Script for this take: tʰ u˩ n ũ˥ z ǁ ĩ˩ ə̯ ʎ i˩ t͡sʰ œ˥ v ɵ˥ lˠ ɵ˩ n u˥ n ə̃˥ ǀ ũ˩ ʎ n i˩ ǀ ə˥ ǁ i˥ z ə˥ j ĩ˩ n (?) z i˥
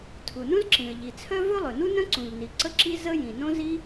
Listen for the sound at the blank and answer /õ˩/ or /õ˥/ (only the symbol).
õ˥